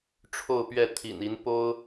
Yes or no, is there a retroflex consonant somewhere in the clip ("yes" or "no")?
yes